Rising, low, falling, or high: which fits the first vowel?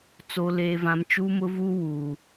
high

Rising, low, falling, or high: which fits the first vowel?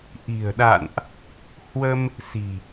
low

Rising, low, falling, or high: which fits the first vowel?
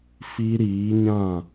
high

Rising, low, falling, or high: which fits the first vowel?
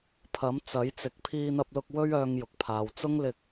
rising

